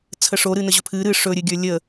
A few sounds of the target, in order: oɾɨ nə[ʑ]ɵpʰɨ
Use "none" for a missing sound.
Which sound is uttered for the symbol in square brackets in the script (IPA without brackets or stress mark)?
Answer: ʑ